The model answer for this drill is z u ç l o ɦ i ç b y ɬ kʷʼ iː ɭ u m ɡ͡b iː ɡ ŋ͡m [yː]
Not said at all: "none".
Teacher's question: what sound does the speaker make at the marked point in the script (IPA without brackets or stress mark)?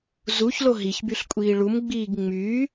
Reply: yː